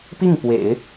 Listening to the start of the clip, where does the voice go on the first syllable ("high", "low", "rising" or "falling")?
falling